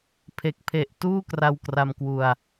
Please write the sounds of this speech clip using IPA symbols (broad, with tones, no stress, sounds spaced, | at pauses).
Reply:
pʰ e˨˩ k̚ pʰ e˨˩ ʔ t uː˥˩ k r a˧ w k r a˧ m k w u˧ a̯